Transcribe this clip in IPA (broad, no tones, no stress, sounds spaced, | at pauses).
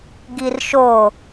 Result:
ɡ i r ʃ o